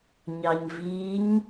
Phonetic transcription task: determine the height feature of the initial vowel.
low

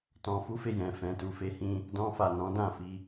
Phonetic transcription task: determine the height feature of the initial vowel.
mid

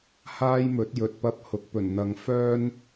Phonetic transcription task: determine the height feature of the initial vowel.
low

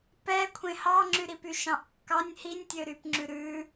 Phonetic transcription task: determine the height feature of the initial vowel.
mid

